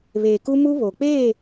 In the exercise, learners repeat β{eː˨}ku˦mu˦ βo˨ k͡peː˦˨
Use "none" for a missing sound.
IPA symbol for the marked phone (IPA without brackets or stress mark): eː˨